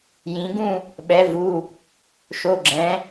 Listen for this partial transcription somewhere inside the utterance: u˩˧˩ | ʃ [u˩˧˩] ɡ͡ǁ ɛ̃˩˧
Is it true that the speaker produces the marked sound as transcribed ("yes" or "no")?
no